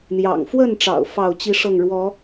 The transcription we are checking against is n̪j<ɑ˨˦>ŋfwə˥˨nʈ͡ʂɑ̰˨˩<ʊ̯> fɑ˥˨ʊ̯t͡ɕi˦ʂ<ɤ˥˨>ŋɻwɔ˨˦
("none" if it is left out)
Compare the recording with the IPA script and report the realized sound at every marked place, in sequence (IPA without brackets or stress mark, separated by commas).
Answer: ɑ̰˨˩, ʊ̯, ɤ˥˨